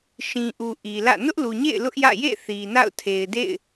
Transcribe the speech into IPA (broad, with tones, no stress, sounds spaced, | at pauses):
ʃ ĩ˨ ʔ u˨ ʔ i˨ l ä̰˦˨ n ʊ˦ ʔ l u˨ ɲ ḛ˦˨ ɪ̯ l ʊ˦ ʔ j ä̰˦˨ j ḛ˦˨ θ i˨ n a̰˦˨ ʊ̯ tʰ e˨ ɪ̯ d ḛ˦˨ ɪ̯